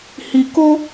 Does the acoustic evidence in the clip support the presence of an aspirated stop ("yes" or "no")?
no